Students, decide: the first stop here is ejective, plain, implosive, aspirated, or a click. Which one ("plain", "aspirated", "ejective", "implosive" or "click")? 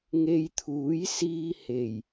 aspirated